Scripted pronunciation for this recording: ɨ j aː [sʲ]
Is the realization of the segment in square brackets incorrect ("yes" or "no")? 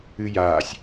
no